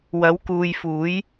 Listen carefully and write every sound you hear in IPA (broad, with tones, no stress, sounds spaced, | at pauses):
w ɐ˨˥ w k uː˨ j f uː˨˥ j